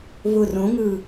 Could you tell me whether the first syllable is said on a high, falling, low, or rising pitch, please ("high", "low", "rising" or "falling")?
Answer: low